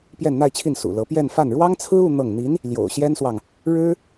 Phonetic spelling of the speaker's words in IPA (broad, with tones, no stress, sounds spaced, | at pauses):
p j ɛ˥˧ n n̪ a˥˧ ɪ̯ t͡ɕʰ i˥˩ n s ṵ˨˩ l ɤ˧˥ p j ɛ˥˧ n f a˥˩ n ɻ w ɑ˥ ŋ t͡sʰ ɹ̩˥ u˥˧ n̪ ɤ˥˩ ŋ n̪ i˧˥ n | l j o̰˨˩ ʊ̯ ɕ j ɛ˥ n s w ɑ˨ ŋ | ɻ ɻ̩˥